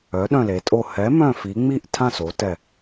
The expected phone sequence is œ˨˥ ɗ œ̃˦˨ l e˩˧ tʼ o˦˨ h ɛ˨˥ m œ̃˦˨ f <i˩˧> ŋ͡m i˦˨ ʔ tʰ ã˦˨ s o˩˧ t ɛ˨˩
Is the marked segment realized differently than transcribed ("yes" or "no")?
no